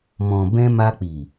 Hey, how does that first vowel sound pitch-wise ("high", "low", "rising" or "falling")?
low